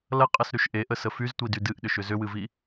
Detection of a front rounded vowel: present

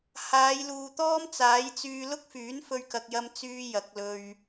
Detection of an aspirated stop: absent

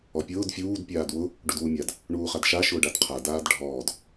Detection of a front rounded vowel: absent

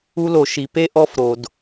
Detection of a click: absent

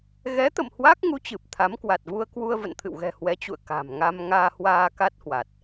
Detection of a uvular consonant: absent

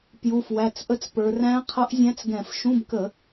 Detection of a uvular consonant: present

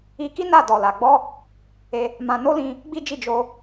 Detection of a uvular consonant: absent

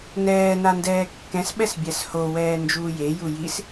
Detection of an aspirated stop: absent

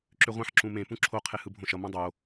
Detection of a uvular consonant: present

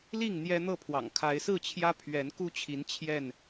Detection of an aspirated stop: present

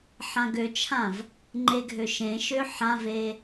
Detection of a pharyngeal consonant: present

